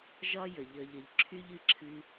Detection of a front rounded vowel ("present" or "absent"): present